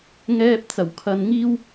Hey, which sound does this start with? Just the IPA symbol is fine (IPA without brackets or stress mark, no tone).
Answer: ŋ